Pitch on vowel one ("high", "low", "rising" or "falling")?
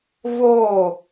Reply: falling